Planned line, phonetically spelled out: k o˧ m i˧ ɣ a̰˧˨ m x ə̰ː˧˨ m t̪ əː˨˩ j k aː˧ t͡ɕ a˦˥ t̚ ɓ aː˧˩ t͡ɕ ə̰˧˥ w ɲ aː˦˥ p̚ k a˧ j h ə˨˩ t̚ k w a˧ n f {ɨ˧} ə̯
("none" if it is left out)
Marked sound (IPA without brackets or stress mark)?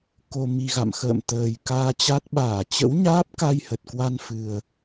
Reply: ɨ˨˩